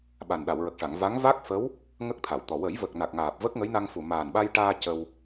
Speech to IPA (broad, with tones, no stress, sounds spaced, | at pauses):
ɓ a˨˩ n ɗ a˨˩˨ w ɹ ə˨˩ k̚ ʂ a˨˩˨ ŋ v a˧˥ ŋ v a˦˥ k̚ f ə˧˥ w | ŋ ə˦˥ k̚ t̪ʰ a˨˩˨ w t̪ ɔ˨˩ w ə˨˩˦ j v ə˨˩ k̚ n a˨˩ k̚ ŋ aː˨˩ p̚ v ə˦˥ k̚ ŋ ə˧˥ j n a˧ ŋ f u˨˩ m aː˨˩ n ɓ a˧ j ʈ aː˧ c ə˧ w